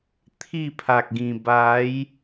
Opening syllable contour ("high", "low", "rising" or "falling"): falling